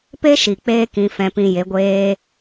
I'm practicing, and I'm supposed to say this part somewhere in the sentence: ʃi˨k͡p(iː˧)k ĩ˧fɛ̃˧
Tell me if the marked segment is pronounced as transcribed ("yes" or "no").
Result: no